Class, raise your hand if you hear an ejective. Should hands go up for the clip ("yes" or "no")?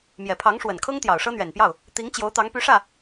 no